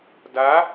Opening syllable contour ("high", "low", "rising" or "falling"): rising